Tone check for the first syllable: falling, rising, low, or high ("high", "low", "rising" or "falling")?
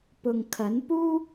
low